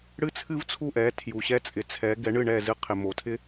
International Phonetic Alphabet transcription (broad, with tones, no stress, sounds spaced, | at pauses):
ɽ ɨ˥ t͡sʰ ɨ˥ v t͡sʰ u˥˩ ʔ ɛ˩˥ tʰ j u˩ ɕ ɛ˧ t͡sʼ ɪ˩ t͡sʰ ɛ˩˥ ɡ ɛ˩˥ ɳ ɨ˥˩ ɳ ɛ˥˩ z ɨ˧ qʰ ɪ˩ m o˩ tʰ ɪ˥